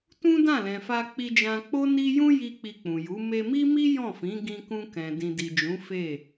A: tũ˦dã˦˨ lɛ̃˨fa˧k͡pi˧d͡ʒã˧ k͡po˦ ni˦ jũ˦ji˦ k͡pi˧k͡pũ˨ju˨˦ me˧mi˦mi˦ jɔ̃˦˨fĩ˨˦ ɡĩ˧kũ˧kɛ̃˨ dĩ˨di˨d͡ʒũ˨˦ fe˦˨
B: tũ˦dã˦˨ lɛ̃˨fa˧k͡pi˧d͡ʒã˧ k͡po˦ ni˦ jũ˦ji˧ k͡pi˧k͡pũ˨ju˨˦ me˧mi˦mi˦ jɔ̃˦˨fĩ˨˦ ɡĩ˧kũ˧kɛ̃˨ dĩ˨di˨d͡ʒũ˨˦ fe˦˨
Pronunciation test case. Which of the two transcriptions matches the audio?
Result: B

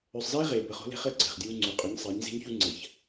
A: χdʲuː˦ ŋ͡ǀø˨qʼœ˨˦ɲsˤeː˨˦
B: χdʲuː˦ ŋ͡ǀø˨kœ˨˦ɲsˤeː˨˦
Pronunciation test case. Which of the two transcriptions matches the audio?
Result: A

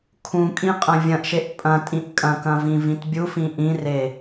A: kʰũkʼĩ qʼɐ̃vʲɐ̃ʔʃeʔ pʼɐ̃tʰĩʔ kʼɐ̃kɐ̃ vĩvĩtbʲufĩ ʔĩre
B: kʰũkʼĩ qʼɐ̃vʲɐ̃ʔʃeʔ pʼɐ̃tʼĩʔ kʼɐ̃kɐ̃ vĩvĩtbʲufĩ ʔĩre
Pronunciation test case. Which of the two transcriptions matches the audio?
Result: B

